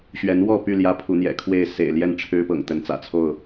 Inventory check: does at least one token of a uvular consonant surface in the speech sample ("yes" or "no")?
no